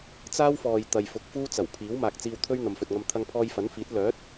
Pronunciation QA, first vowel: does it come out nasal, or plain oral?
oral